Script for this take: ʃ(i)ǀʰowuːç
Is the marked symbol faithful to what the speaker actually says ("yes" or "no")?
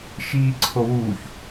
no